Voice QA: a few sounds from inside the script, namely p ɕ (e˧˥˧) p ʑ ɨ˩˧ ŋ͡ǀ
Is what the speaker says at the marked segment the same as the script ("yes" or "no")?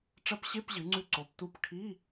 yes